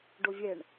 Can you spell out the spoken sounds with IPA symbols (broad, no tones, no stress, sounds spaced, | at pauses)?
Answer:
ɖ o vʲ ɛ ɳ